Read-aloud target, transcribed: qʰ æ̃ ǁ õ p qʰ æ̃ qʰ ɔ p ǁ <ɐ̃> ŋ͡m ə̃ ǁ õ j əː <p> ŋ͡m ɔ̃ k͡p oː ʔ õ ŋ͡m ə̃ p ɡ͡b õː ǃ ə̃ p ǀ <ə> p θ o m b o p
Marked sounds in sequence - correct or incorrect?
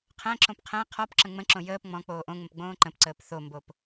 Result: incorrect, correct, incorrect

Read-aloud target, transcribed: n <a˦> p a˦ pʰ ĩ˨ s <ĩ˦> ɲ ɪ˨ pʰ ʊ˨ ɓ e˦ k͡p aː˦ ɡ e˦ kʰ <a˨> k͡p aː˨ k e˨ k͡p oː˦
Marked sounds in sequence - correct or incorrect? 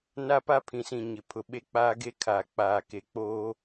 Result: correct, incorrect, correct

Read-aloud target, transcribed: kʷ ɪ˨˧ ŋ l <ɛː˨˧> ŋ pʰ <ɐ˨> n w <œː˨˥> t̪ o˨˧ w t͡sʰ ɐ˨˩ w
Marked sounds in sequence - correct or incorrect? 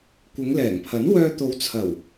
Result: incorrect, incorrect, incorrect

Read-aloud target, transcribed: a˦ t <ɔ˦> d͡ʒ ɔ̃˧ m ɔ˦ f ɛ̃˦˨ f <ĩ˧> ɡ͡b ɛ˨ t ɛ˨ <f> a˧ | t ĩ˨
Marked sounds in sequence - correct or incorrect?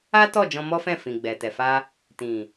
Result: incorrect, incorrect, correct

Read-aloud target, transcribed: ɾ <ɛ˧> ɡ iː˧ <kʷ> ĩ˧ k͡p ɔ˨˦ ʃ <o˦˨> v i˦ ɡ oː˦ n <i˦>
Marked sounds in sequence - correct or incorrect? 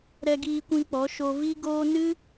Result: correct, correct, incorrect, incorrect

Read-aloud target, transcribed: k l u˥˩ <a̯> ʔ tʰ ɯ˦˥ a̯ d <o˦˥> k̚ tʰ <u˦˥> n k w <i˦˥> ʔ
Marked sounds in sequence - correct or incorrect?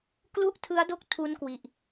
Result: incorrect, incorrect, correct, incorrect

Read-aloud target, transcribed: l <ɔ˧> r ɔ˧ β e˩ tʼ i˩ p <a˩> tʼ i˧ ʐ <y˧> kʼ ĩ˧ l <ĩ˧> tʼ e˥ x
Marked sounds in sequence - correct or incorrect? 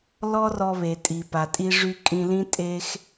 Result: incorrect, correct, correct, incorrect

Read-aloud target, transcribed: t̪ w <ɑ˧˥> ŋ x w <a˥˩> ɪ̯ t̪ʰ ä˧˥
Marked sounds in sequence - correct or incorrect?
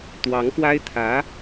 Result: correct, incorrect

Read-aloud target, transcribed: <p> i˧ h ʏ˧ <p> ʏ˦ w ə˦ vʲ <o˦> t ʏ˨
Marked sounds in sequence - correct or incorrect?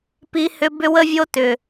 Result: correct, incorrect, correct

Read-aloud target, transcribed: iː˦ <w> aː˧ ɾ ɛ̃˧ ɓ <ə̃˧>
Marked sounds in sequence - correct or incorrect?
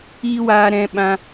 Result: correct, incorrect

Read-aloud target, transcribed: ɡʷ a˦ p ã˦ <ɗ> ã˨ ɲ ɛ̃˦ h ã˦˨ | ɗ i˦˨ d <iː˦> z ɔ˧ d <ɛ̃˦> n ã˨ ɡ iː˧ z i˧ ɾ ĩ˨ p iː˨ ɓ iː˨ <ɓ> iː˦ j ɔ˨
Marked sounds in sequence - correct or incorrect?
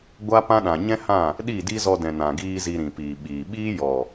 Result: correct, incorrect, incorrect, correct

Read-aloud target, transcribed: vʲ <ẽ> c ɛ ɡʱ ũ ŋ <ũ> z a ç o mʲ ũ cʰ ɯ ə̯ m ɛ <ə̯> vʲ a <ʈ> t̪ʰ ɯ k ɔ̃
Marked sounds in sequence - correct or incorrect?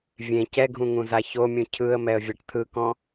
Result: correct, correct, correct, correct

